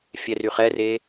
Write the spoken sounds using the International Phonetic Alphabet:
fʲ ɛ r y χ ɛ r e

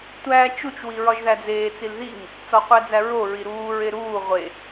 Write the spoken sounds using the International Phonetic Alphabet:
tʷ æː t͡ʃ u t͡ʃ w i ɹ ɒ ʒ ð æ d͡z eː t͡s i l ð i ŋ | t͡s ɒ qʷ æ d͡z æ ɹ o ɹ i ɾ uː ɹ e ɾ uː ʁʷ e

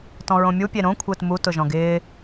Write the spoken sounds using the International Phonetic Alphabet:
t ɔ̃ ɹ õ mʲ u pʲ e ɾ õ kʷʰ ɪː t m u t ʊ ʒ ɔ̃ ɡ ɪː

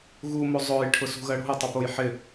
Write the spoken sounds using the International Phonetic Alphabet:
ɣ u m o zˤ ʊː j ʈʰ ʊ s ṳ ɣ ɜ ɽ o̤ j tˤ ɪ p o j ħ ɪ

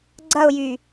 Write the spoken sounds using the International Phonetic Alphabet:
ɡ͡ǀ ɐ ʊ̯ j y

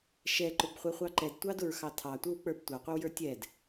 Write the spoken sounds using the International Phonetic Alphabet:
ʃ ɛ ǃ ʊ b χʷ ɛ χʷ ɑ ǃ ɛ d tʷ ɑ d ʊ ɹ x ɑ tʰ ɑ tʷ ə˞ w k͡p ə˞ b tʷ ɑ qʷ ɪ w j ə˞ tʲ ɛ d

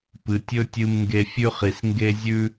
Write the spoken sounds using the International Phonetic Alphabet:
p ɨ˧ tʲ ɵ˥ tʲ ɨ˥ m ŋ ɡ e˥ fʲ ʉ˥ χ i˧ s ŋ ɡ e˥ zʲ ʉ˥

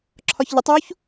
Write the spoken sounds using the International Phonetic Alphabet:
ǁʰ ɒ ç ʎ ʊ tˤ w u ç

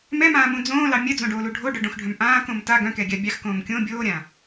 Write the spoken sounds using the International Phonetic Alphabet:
m ɛ m ãː m ũ d͡z õː l ɑ mʲ œ d͡z õ ɖ oː l u ɖʱ o ɖ œ ɖ õ x ɖʱ œ̃ m ʔ ãː k õ m t a ɡ œ̃ k ɛ ɡʲ a bʲ ɑ x k õː m kʲ õ bʲ oː ɾʲ ã

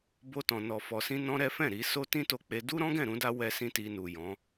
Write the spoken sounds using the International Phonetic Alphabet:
b o˧ t ɔ̃˨ n ɔ˨ f ɔ˨ s ĩ˧ n ɔ̃˦ ɾ ɛ˦ f ɛ̃˦˨ ɾ i˧ s o˦ t ĩ˦ t o˧ k͡p e˧ d u˦ ɾ ɔ̃˦ ɡ ɛ̃˦˨ ɾ ũ˧ d a˧ w ɛ˦ s ĩ˦ t i˧ n u˨ j ɔ̃˨˦

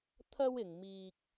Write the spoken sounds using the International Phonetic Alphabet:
t̪ʰ ɐ˥ w ɪ˨ ŋ m iː˧ k̚

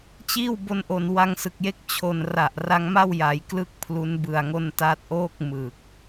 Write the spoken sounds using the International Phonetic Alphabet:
t͡ɕ iː˥˩ w b o˧ n ʔ o˨˩ n w a˧ ŋ s ɯ˨˩ k̚ j e˥˩ k̚ t͡ɕʰ o˨˩ n r a˨˩ ʔ r a˧ ŋ m a˥˩ w j a˩˦ j k l ɯ˦˥ k̚ pʰ l u˦˥ n b ɯ˨˩ a̯ ŋ o˧ n t aː˦˥ t̚ ʔ oː˥˩ k̚ m ɯ˨˩ k̚

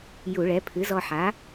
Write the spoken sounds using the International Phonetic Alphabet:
j u˧˩˧ ɭ ɛ˩˥ pʰ ɨ˩˥ z ɔ˧ ħ a˩˥

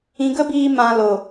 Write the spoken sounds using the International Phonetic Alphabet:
ĩ˨ ɡ ə˧ b iː˨ m ã˨ l o˨

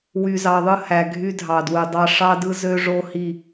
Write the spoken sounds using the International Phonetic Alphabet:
w y˨ z ɑ˨ ðˤ ɯ˧ h æ˨ ɡʱ y˧ dʱ ɑ˨ d w ɯ˨ dˤ ɑ˧ ʂ ɑ˦ d ɯ˦ z ø˦ ʐ o˦ h i˦˨

